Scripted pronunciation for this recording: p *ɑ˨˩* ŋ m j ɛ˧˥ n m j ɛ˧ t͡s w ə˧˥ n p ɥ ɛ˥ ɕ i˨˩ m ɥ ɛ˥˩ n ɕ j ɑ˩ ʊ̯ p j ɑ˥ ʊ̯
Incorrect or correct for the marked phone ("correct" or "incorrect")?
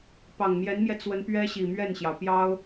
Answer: correct